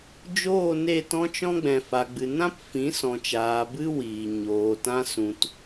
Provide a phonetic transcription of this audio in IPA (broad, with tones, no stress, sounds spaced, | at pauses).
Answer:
d͡ʒ oː˦˨ n e˦˨ t ɔ̃˦ t͡ʃ ɔ̃˦ ɡ͡b ɛ̃˨ f a˨ ɡ͡b ɨ˨ n ã˦ p f ĩ˨˦ s ɔ̃˨ t͡ʃ aː˨ b ɨ˦ w iː˨ ɲ oː˨ t ã˦ s ũ˦ t